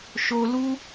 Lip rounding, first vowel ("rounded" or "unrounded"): rounded